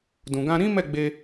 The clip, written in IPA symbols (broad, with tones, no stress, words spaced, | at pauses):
dũ˨ɡã˧ɾĩ˦ mɛ˦˨ɡ͡be˧